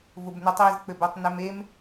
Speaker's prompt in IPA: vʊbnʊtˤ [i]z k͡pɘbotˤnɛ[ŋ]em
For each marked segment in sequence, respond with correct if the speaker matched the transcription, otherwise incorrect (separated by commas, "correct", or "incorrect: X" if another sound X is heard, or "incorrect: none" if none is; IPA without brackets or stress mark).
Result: correct, incorrect: m